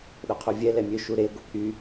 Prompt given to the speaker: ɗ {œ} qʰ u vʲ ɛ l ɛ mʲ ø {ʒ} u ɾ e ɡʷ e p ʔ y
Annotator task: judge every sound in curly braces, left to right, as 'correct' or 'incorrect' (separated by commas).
correct, incorrect